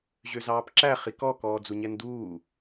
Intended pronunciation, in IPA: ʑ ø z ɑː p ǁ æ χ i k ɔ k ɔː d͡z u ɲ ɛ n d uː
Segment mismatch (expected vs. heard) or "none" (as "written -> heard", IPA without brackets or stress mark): none